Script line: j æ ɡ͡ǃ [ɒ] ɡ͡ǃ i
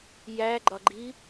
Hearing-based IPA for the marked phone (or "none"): ɒ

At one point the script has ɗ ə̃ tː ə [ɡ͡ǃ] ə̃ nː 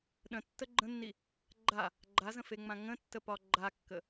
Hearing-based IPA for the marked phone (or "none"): ɡ͡ǃ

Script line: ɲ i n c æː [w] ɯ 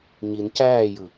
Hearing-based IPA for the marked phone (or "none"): j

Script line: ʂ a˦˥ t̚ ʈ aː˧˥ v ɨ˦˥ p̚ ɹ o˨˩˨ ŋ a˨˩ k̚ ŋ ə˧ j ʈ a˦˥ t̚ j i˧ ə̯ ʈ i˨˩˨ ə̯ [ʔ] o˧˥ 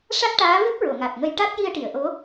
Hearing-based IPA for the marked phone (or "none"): ʔ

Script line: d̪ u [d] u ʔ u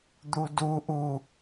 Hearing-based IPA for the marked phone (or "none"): d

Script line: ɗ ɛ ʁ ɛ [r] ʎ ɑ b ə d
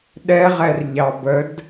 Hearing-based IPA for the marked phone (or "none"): r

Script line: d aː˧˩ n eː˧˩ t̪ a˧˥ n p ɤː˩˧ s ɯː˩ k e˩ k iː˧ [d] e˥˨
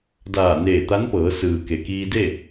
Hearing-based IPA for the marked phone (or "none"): d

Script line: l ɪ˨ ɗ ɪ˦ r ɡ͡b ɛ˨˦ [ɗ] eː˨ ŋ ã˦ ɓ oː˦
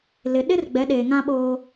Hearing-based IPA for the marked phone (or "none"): ɗ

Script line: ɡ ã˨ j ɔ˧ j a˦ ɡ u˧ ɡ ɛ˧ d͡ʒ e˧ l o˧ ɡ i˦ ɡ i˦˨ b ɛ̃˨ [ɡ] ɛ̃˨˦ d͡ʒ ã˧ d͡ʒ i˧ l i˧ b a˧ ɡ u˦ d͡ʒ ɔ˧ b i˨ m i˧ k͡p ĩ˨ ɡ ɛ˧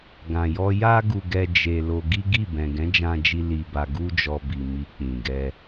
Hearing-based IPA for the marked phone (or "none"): ɡ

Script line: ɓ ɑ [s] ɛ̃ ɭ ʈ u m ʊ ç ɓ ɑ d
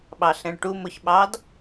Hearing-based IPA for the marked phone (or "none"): ɬ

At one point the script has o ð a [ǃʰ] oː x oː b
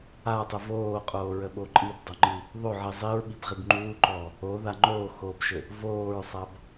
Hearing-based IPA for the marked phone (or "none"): ŋ͡ǃ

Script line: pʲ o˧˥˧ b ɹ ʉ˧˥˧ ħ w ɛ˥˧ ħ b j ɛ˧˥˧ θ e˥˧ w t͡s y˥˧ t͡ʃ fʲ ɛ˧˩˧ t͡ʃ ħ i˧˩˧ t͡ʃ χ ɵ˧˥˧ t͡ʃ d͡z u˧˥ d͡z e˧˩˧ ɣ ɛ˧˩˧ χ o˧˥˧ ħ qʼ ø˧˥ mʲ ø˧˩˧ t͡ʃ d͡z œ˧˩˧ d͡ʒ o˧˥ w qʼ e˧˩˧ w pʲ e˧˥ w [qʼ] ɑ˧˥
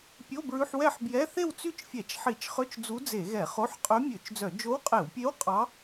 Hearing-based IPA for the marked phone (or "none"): qʼ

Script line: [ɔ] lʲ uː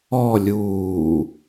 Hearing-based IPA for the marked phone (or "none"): ɔ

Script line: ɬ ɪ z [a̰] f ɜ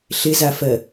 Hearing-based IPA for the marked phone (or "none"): a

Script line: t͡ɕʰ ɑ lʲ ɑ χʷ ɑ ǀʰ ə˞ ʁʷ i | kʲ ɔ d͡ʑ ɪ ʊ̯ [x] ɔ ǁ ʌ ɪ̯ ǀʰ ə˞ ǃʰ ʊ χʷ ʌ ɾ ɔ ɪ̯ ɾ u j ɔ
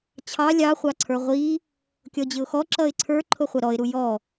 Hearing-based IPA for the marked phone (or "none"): x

